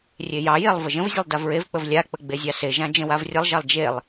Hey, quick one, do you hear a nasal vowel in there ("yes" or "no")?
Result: yes